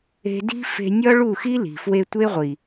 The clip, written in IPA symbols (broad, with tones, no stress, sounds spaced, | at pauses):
e̤˧ d i̤˦ f e̤˧ nʲ ɒ˦ ɭ u˦˨ x i˦ l i̤˨ f w e˧ tʷ e˦ ʁʷ i˨